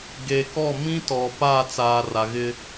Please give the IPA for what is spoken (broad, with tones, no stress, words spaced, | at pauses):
ɡeː˨kɔ˦˨ mĩ˦tɔ˨ pa˦˨t͡saː˨ ra˨ɣɪ˦